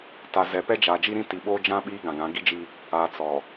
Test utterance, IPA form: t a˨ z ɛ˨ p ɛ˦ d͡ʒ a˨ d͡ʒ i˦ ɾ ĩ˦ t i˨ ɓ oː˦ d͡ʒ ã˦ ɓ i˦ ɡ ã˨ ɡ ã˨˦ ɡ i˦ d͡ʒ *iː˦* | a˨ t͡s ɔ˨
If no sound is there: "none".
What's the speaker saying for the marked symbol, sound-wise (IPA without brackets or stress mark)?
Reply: i˦